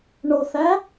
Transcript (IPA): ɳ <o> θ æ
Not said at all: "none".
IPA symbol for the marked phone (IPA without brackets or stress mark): o